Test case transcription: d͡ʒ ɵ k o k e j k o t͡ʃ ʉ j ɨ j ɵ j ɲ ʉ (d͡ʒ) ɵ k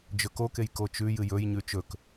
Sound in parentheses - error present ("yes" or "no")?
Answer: yes